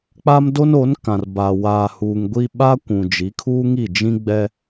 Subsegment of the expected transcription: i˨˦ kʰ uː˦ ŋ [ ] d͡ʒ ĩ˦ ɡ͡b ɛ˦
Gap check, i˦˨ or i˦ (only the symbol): i˦˨